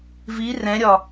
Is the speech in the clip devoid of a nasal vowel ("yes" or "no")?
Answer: no